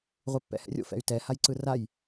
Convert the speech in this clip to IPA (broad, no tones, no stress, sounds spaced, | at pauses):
ʁʷ i pː ɛ̰ h ɛ̰ rʲ o̰ f ɛ̰ y̯ t ɛ h a j ǀ ɯ r a j